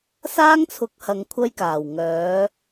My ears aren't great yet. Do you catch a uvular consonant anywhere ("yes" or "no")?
no